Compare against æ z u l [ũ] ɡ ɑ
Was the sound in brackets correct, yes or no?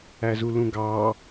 yes